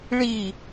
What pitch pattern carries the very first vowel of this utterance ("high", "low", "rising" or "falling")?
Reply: falling